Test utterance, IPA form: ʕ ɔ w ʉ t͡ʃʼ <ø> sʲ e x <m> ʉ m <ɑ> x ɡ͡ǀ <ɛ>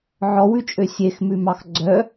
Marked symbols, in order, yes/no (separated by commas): yes, yes, yes, no